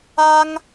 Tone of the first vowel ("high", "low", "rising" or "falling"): high